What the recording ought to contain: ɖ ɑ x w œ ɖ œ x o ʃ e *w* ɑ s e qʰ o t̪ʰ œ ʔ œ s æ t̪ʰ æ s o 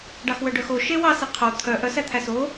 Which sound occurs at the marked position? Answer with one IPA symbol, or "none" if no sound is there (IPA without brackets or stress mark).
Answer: w